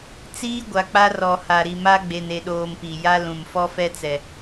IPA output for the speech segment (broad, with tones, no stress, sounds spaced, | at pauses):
t͡s iː˦ ɡʷ a˨ k͡p a˦ r ɔ˨ h a˨ ɾ i˨ m a˦ ɡ͡b e˨ n e˨ ɗ oː˨ m p i˨ j a˦ l ũ˨ m f ɔ˦ f ɛ˦ t͡s ɛ˨